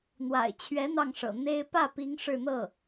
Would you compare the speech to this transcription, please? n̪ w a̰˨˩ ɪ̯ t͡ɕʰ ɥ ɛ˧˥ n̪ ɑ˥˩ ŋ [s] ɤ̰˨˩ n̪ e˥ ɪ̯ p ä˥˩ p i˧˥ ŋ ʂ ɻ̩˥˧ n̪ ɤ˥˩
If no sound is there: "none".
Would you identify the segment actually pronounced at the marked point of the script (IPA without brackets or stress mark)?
ʂ